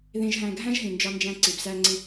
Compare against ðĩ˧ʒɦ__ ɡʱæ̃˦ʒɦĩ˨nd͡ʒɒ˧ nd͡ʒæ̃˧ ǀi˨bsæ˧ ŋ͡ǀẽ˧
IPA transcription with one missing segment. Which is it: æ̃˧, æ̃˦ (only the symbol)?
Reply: æ̃˧